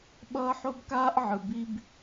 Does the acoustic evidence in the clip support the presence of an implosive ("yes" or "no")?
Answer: yes